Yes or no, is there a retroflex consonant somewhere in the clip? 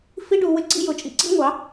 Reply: yes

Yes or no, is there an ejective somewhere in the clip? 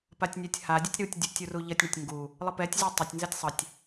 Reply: no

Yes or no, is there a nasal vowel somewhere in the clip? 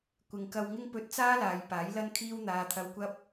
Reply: no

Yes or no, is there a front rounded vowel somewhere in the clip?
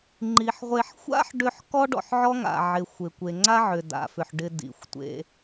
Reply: yes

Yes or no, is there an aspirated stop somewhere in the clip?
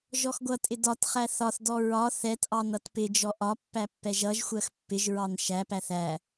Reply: no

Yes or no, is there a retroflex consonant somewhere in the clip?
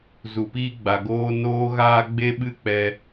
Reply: no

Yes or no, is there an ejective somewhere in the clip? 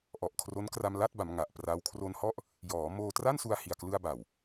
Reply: no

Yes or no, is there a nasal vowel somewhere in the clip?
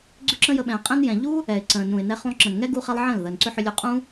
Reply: yes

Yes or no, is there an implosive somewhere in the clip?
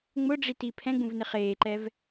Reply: no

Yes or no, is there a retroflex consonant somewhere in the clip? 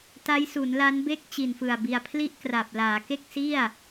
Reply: no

